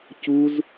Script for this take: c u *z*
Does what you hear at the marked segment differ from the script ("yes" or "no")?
no